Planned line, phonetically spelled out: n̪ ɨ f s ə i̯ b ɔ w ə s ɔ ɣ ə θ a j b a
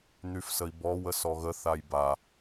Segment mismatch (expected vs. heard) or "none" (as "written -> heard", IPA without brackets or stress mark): ɨ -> y